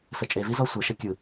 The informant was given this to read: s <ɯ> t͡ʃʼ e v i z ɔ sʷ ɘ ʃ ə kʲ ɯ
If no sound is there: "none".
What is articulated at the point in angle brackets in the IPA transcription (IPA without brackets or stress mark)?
ə